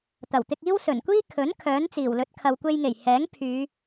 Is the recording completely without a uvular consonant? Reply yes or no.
yes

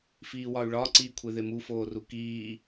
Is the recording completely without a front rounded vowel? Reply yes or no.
no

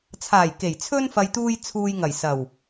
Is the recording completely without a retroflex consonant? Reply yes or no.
yes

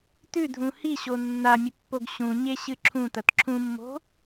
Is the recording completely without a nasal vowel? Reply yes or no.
no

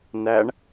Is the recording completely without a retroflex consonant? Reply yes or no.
no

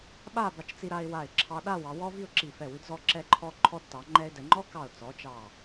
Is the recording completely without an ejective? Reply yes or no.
yes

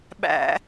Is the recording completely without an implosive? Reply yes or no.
no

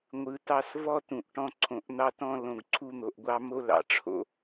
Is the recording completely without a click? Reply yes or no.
no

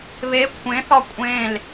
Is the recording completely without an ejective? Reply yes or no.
no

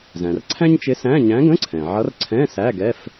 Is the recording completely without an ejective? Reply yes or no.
yes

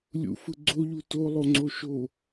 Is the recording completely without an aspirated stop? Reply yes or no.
yes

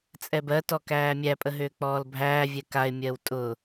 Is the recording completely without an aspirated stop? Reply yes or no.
yes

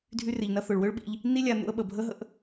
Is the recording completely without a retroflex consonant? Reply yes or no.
no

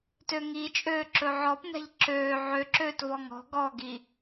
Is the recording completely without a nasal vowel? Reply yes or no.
yes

